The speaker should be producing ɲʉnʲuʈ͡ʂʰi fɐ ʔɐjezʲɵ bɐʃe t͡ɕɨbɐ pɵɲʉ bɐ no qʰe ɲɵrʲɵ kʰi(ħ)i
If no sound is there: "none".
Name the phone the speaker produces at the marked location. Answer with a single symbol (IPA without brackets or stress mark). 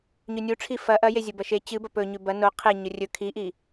ʔ